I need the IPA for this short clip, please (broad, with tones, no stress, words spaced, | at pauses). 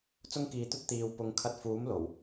t͡sʊ˥ŋkiː˨˧t̪ɵ˥t̚ t̪iː˨w pʊ˧ŋ kʰɐ˧t̚fuː˨˥m lo˨˩w